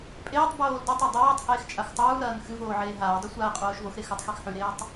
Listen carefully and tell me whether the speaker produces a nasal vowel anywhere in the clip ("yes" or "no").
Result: no